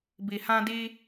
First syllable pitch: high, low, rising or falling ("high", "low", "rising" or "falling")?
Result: low